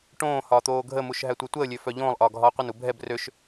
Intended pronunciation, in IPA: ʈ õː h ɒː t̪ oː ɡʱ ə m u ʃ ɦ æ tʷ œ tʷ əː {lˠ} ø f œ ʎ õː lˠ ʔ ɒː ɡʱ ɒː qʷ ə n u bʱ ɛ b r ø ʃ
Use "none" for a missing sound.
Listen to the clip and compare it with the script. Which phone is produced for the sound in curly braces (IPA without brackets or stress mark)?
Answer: lʲ